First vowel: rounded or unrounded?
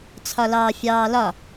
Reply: rounded